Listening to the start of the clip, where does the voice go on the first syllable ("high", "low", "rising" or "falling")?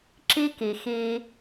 high